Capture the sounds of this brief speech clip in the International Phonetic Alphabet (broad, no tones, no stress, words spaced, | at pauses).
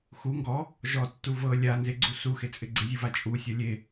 xu ŋɡɔ | ʒɔtːu vɤ lʲanzeɡ͡ǀu suxet͡sʼɪ ɡ͡ǀɪzʲuva t͡ʃʼusʲɔ lʲe